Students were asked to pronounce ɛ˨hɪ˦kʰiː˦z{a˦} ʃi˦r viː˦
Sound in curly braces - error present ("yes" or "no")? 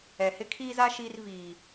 no